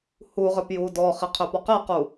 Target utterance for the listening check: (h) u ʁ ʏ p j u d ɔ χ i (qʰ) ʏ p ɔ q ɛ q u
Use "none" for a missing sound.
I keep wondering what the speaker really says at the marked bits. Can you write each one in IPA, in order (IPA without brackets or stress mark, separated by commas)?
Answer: h, qʰ